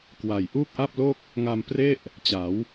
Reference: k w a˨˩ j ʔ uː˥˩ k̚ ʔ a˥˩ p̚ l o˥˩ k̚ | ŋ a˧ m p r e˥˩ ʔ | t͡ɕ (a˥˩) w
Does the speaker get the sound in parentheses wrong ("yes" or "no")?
yes